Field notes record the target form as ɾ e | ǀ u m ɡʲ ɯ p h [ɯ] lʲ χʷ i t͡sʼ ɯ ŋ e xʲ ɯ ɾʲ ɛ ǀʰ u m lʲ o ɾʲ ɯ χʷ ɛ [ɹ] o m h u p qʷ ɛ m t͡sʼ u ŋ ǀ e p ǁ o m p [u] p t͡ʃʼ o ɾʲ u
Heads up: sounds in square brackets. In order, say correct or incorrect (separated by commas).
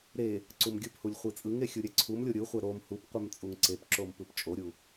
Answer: incorrect, incorrect, incorrect